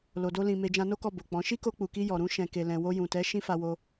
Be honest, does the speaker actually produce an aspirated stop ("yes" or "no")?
no